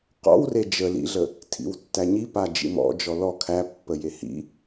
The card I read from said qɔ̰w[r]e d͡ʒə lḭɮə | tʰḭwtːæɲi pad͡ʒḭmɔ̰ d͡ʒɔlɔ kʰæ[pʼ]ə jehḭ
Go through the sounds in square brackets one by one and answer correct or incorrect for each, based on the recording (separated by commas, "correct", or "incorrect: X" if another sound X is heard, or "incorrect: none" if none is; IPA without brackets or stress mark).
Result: correct, incorrect: pː